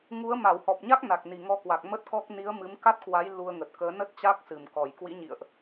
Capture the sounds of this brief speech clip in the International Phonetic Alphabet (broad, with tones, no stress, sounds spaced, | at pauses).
ŋ u˨˦ ə̯ m a˧˩ w h ɔ˨˩ p̚ ɲ a˦˥ k̚ n a˨˩ k̚ n i˨˩ ŋ ɔ˧ k w a˨˩ k̚ m ə˦˥ t̚ k ɔ˦˥ k̚ n i˨˦ ə̯ m ɨ˨˦ m k a˦˥ t̚ k w a˨˦ j l u˧ ə̯ ŋ ə˨˩ t̚ k əː˨˦ n ə˦˥ t̚ t͡ɕ a˦˥ k̚ s ɨ˧˩ m k ɔ˧˩ j k w ḭ˧˥ ɲ ḭ˧˨ ə̯ ʔ